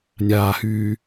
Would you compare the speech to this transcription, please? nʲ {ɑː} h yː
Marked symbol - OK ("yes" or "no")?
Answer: no